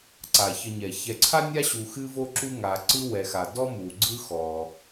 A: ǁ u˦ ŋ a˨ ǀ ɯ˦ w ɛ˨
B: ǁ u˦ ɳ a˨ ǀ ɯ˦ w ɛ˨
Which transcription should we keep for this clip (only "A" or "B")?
A